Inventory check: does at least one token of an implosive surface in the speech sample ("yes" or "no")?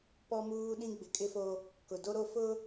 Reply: yes